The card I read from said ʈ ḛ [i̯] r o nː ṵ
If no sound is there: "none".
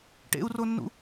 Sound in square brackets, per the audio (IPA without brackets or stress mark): u̯